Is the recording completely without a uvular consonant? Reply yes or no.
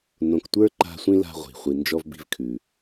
no